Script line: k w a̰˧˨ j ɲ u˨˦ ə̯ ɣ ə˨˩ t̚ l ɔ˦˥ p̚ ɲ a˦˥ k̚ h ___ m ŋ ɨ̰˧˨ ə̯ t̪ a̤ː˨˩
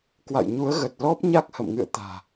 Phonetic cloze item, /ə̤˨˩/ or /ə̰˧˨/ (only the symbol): ə̰˧˨